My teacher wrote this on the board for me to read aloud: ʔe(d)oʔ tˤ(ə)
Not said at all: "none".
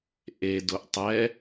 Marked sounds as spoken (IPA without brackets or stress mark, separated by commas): d, ɛ